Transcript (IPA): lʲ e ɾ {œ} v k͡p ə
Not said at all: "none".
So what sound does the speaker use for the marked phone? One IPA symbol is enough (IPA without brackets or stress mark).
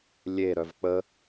œ